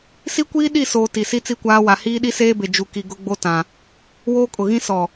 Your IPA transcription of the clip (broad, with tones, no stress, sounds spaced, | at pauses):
s i˦ kʷ iː˦ ɗ i˦˨ s oː˨ t i˨ s i˦ t͡s i˦˨ kʷ aː˦ w a˨ h iː˦ ɗ i˦ s eː˦ b e˨ d͡ʒ u˨ k i˨ ɡ ʊ˦ ɡ͡b o˦ t ã˨ | w oː˦ kʼ ʊ˨ ɣ ĩ˦ s ɔ˨